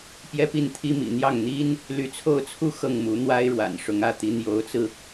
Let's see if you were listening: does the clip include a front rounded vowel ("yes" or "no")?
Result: yes